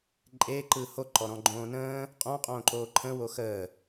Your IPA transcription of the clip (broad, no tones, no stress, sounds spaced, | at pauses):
ǃʼ e ǃ ɯː h o ǃ ɔ ɾ ɔ̃ ɡ͡ǃ õː n ə̃ː | qʼ õ qʼ õː ǃ oː ǃʰ ə̃ w o x əː